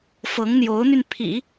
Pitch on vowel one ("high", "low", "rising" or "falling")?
rising